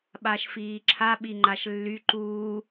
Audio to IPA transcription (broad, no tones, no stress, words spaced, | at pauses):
ɓaʃfiːǁʰa ɓiŋ͡ǃaʃlːy ǃuː